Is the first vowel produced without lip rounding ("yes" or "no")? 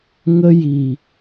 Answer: yes